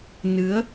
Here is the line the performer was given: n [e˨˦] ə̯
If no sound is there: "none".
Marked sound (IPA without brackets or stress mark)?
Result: ɨ˨˦